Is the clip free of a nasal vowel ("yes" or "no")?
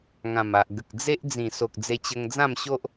no